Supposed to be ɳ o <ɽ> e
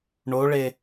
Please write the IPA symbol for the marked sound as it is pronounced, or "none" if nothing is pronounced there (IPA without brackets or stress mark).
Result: ɭ